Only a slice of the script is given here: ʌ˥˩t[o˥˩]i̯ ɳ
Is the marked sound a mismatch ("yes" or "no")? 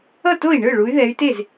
no